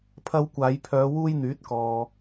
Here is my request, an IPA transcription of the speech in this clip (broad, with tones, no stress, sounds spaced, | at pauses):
pʰ ɐ˧ w kʷ aː˨˧ j pʰ œː˨˧ w uː˥ j n̪ yː˨˥ t̚ k ɔː˨